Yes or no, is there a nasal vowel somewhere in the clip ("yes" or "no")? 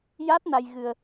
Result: no